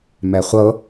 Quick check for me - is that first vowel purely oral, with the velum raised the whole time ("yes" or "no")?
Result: yes